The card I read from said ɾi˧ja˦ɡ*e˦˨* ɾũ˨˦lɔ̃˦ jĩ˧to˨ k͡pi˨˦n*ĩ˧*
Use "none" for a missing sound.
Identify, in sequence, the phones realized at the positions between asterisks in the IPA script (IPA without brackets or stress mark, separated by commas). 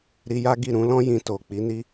i˦˨, i˧